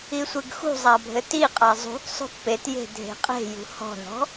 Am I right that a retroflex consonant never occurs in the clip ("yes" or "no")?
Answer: yes